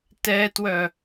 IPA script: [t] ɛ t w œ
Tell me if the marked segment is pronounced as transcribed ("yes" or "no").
yes